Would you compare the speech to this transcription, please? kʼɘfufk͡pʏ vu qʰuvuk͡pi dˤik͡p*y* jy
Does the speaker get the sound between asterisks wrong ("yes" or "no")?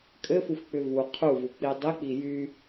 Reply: yes